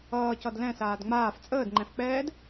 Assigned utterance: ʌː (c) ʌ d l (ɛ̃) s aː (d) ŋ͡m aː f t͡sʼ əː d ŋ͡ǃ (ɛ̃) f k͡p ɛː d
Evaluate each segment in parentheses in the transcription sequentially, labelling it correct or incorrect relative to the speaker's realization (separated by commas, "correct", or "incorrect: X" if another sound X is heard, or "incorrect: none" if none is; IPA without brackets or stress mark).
correct, correct, correct, correct